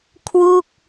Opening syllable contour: falling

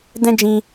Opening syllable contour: high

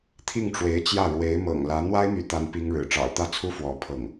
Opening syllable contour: falling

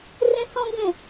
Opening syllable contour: high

